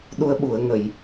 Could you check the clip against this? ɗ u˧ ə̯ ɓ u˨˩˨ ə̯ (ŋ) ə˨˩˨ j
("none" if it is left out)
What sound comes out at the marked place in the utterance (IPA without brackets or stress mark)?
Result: ŋ